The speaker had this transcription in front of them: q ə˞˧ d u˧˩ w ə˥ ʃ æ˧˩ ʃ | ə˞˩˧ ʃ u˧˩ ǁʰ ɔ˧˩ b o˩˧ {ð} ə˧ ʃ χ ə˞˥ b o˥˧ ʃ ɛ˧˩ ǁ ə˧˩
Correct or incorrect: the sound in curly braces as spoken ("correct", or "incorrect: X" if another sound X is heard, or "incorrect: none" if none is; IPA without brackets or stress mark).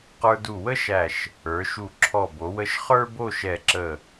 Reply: incorrect: w